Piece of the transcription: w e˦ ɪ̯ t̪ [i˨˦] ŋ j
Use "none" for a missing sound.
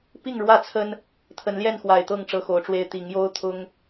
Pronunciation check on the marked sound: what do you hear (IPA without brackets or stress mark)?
i˨˦